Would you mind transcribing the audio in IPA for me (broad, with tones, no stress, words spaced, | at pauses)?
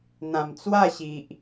n̪ã˨˩m t͡swa˥˧ɕi˨ʔ